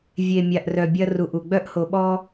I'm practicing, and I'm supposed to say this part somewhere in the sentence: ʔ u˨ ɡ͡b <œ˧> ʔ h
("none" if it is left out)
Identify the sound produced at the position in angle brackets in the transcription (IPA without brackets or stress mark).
œ˧